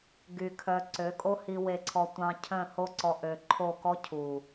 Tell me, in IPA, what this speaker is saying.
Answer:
ɡy˧kʰœ˧ ǀø˨˦kʼo˦hi˧ we˧ǀʰɔ˧ tʷɑ̃˧ cʰœ̃˦˨ ho˧ǀɔ˨ ʔø˨ǃʰo˦˨kɔ˦ cʰu˨

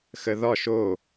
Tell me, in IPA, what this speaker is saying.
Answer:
xəðɒʃ o

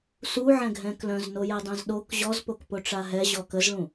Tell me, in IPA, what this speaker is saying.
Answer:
suʕɛ̃ ɡʱɛ̃klœ̃z nojɛdˤœ̃zɗok ʑɔzpokpo ʈ͡ʂaɦɛ ʑɔkəzɭũ

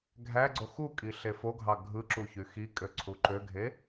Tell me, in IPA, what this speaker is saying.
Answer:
ɡʱæɡ͡ǀo xukʼi ɬefoɡʱɑ ɡʱɯǁu çyxikʼø ǀʰuǃøɡʱe

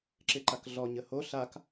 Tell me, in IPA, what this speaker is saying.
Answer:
ǁɪǃakɮɔ ɲəho ɬak

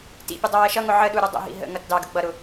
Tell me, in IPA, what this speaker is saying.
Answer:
tḭpʲʊ dˤʌwɜʃʌŋʊ ʕəɗu ɾʊdˤə̰ɦḭ ɦə̰ ŋʌtdɑɡə ɡ͡bʌɾʊ

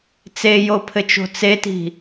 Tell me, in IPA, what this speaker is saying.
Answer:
t͡sejopʰɘt͡ʃo̤ t͡seti̤

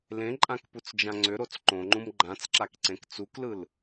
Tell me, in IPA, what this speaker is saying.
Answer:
lẽǃʼãkput͡sd͡ʒã ŋ͡ǀʏɾot͡s ǃõŋ͡ǃũm ɡ͡ǃãt͡sǁakǀẽk t͡suklɯl

